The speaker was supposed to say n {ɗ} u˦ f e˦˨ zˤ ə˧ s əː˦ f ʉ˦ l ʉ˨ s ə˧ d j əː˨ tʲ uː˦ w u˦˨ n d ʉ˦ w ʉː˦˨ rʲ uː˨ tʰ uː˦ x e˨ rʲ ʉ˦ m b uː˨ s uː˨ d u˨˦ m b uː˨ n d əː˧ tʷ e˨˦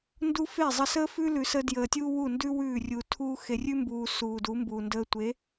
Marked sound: incorrect: d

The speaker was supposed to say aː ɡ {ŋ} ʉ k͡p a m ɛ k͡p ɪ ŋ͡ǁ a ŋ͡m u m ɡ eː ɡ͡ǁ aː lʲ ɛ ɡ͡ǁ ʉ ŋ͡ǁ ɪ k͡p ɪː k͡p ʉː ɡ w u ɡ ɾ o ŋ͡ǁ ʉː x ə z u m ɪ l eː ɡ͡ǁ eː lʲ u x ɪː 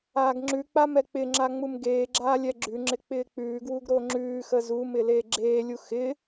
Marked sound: incorrect: ŋ͡ǁ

